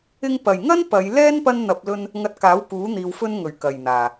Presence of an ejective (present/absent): absent